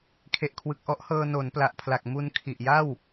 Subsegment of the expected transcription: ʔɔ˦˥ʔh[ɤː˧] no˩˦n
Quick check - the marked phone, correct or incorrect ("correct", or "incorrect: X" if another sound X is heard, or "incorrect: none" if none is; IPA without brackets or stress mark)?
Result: correct